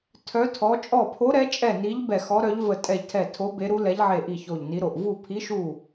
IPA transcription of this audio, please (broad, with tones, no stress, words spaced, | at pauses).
tʰœ˨˦tʰɔ˨˦ t͡ʃʼɔ˧˩pʰo˨˦ɾɛ˨˦t͡ʃʼɛ˧˩ ni˨˦ʎ bɛ˧˩xɔ˨˦ɾœ˨˦ʎ və˧˩tʼɛ˧˩ʎtʰɛ˧˩ tʰo˨˦ be˨˦ɾu˨˦ lɛ˨˦ʎʕe˧˩ʔi˧˩ ço˧˩ʎni˨˦ɾo˧˩ʔ vu˧˩pʰi˨˦ʃu˧˩